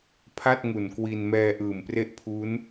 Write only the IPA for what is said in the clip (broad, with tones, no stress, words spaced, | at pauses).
pʰa˥˩t̚ ŋu˨˩nkwi˧n mɛː˧ʔɯː˨˩mpre˦˥ʔ pʰu˦˥n